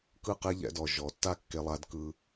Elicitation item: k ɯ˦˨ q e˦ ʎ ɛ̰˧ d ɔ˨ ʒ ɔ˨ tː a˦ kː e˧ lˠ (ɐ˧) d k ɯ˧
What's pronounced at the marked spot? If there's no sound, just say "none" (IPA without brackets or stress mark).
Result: a˧